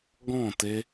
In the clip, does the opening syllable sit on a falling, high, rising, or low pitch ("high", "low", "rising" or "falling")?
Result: falling